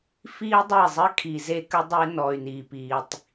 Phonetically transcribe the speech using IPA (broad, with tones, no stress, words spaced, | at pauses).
fiː˦dˤe˦˨zˤɘ˦ kʰi˨ze˦kə˦ dˤe˦ nɔ˨y̯ niː˨piː˨tˤ